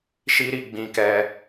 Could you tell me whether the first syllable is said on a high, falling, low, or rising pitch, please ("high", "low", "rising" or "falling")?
high